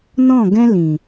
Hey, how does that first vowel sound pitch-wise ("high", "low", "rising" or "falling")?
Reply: falling